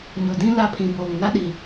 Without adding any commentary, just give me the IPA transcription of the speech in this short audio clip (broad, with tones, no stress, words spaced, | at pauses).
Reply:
ɲʊ˨dĩ˦ la˦˨pʰĩ˨boː˨ŋ na˦ɗi˨